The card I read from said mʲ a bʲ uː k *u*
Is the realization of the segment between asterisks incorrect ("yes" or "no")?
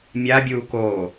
yes